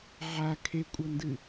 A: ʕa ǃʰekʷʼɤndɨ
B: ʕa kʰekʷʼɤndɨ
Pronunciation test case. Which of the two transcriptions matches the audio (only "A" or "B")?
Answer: B